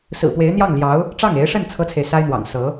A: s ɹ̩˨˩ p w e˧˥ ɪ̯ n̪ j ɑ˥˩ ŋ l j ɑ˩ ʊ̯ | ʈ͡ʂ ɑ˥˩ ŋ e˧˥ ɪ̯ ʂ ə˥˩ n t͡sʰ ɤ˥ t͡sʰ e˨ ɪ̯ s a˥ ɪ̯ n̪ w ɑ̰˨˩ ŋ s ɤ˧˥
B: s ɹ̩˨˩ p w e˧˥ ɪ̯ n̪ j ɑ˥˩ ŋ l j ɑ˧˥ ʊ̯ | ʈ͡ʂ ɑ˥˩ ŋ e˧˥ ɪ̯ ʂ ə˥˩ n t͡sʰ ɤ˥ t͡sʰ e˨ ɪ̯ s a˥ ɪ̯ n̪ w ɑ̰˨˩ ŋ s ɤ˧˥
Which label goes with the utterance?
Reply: B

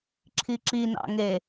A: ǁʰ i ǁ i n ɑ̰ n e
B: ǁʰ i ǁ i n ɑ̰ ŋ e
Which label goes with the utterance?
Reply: B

